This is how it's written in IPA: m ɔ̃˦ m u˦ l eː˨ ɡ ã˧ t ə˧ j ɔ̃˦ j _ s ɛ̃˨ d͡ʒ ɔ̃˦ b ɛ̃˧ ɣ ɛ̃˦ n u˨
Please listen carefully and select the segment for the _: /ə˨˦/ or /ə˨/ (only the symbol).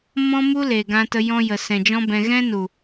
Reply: ə˨